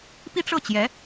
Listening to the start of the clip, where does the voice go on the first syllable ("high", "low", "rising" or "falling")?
high